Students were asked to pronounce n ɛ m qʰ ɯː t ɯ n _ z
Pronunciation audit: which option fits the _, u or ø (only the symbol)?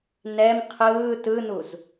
u